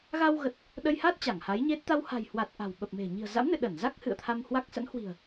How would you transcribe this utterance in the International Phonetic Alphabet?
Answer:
ɣa˧wɣə˨˩t̚ | ɗə˧jha˦˥t̚ t͡ɕa˧˩ŋha˨˦jɲe˦˥t̚ t̪a˧wha̤˨˩jhwa˨˩t̚ ʔa̤˨˩wɓə˨˩p̚me̤˨˩ ɲi̤˨˩ə̯za̰˧˥mnɨ̰˧˨ ɗə˧˩nza˦˥k̚ hɨ̰˧˨ə̯t̪ʰa˧mhwa˦˥k̚ sə̰˧˥nhwi̤˨˩ə̯

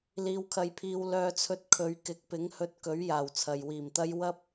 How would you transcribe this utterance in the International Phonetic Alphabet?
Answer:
liː˧wkʰɐ˧jpʰiː˧w lœː˧t͡sʰɵ˧t̚kʰɵ˨˧ɥ kɪ˨˥k̚pɪ˨˥ŋhɵ˧t̚ kɵ˨˥ɥ jaː˨˩wt͡sʰɐ˨jwiː˨˩mt̪ɐ˥j wɐ˥p̚

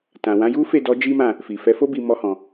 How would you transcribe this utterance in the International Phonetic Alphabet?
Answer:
tã˨ wã˨˦ju˦fe˦˨dɔ˨˦ d͡ʒi˦mã˦˨ | fi˨fɛ˨˦fo˦bi˧ mɔ˧hɔ̃˨

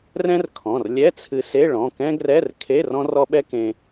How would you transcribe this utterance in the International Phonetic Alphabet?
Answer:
rɛ̃˥r kʰɔ̃˩˧˩rlʲɛ˧˥˧t͡sʰɨ˧se˧˥˧ ɭɔ̃˩˧˩kɛ̃˥ɡrɛ˧˥˧r kʰe˧˥˧r ɔ̃˥rɔ˥ɓɛ˥kẽ˧

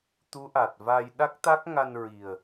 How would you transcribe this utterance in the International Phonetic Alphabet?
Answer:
t̪u˧˥ʔa˨˩t̚va˧j ɗa˦˥k̚t̪a˦˥k̚ŋa˧nɹi˨˩ə̯

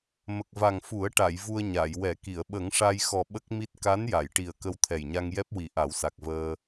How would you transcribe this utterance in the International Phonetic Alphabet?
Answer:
mə˨˩k̚va˨˩ŋfu˨˩˦ə̯ʈa˨˩˨j vu˧ə̯ɲa˨˩˨j wɛ˨˩˦ki˨˩˨ə̯ ɓə˨˩˦ŋʂa˧jxɔ˨˩ ɓə˦˥k̚mi˦˥t̚ ka˧˥nja˨˩˨jʈi˨˩ə̯ kə˧wt̪ʰɛ˨˩jɲa˧ŋjɛ˦˥p̚ wi˨˩˦ʔa˨˩˦wsa˨˩k̚vəː˧

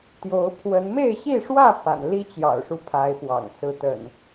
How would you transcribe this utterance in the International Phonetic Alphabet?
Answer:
t̪jo˨˦ʊ̯pʰwə˨˦n me˥˨ɪ̯ɕi˥˨ʂwä˥˨ pa̰˨˩n li˦t͡ɕjɑ̰˨˩ʊ̯ʂu˦ pʰa˨˦ɪ̯pwɑ̰˨˩ŋ sɹ̩˨˦t̪ə̰˨˩n

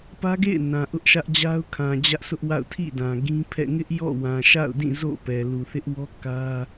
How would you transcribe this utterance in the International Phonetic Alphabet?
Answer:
pä˦ɡḛ˦˨ɪ̯ nã˨ ʔʊ˦ʔʃä˦ʔd͡ʑa˦ʊ̯kʰã˨ d͡ʑä˦ʔsʊ˦ʔwa̰˦˨ʊ̯ tʰḭ˦˨ dã˨ɡĩ˦pʰɛ̰˦˨ ŋɪ˦ʔ jɔ̰˦˨wã˨ ʃa̰˦˨ʊ̯dĩ˦˨ zo̰˦˨ pɛ˨lu˨θɪ˦ʔwɔ˦ kä˦

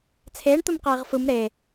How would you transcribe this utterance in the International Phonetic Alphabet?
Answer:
t͡sʰeːɳt̪ɯmqeːʁ fɯm ɾe

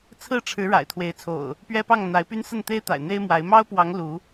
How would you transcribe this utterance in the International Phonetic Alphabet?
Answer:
t͡sʰɹ̩˥˨ ʈ͡ʂʰɻ̩˨˦ ɻa̰˨˩ɪ̯t̪ʰwe˨˦ɪ̯t͡sʰo̰˨˩ʊ̯ | pɥɛ˦pɑ˥˨ŋ n̪a˨˦ɪ̯py˦nsə˥˨n t̪e˦ɪ̯t̪a̰˨˩ɪ̯ n̪e˦ɪ̯mwa˨˦ɪ̯ mɑ˦ʊ̯pwɑ˨˦ŋ lu˨˦

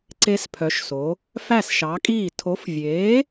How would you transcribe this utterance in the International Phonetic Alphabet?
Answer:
ǀe˦˥spʰœ˨˥ʃso˨˥ | fæ˥˩sʃɑ˨˥kʼiː˥˩ tʰo˨˥fvʲeː˨˥

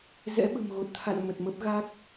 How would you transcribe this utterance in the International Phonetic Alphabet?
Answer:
zɛ̰˧˥ɓə̤˨˩mɣo˨˩t̚t̪ʰa̰˧˨n mə˨˩t̚mə˦˥p̚ɣa˦˥k̚

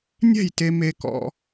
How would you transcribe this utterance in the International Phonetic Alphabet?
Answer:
nʲɛ̤˥˨jte˧ me˧kɔ̰˧

